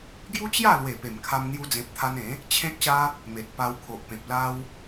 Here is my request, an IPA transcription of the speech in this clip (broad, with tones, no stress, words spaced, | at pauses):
ɡju˦t͡ɕja˥˧lwe˨˩ pe˨˩mkʰa˧mn̪ju˧d͡zẽ˨p̚ t̪ʰa˧nẽ˨˦ | t͡ɕʰẽ˦k̚ɕa˦ | me˨t̚pa˧wkʰo˨ʔpẽ˨p̚ la˦w